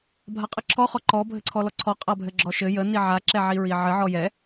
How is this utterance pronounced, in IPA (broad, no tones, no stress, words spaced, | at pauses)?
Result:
bʱaqʼəǁʰɔ χɔǃɔ bʱɘǀʰɔlɔǀʰɔ qʼabʱɘɡ͡ǁɔʃɘ jə niʕa ǁɛʕiɹiʕɘ ʕɔjɛ